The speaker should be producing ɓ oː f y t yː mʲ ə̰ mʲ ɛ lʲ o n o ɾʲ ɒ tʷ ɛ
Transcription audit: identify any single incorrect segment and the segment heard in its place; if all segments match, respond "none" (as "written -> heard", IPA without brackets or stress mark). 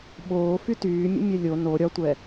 none